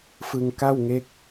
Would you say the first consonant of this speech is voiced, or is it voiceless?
voiceless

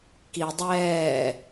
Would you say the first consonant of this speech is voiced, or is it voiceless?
voiceless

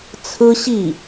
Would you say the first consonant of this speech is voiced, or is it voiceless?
voiceless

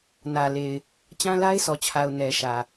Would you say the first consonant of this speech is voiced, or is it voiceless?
voiced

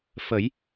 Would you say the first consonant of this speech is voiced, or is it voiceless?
voiceless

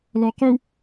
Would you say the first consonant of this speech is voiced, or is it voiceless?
voiced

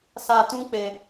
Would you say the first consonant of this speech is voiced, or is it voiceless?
voiceless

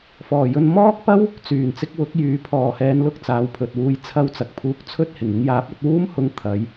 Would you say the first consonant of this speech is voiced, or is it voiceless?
voiceless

